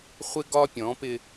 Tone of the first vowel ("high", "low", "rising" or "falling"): high